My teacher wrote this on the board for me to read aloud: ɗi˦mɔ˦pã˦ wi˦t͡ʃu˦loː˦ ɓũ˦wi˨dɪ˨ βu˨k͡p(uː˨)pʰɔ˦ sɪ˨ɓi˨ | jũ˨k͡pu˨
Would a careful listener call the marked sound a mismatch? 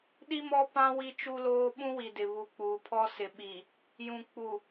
no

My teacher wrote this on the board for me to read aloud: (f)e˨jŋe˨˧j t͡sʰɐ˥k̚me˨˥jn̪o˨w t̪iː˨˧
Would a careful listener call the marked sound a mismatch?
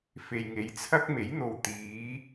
no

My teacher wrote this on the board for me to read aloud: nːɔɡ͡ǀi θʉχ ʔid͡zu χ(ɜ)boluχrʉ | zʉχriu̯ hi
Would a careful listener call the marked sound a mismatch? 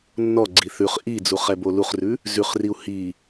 yes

